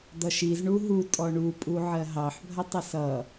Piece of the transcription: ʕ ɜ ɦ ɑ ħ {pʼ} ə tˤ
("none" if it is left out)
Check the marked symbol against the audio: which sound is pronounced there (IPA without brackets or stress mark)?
bʱ